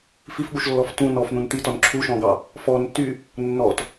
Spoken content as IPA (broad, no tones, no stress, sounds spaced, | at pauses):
f i f ɠ u ʃ lː ɔ f t ũ n ɔ f n̪ ũ n t̪ i t ɔ n ǁʰ u ʃ ɔ̃ ɡ ɑ | f ɔ n t y | nː ɔ t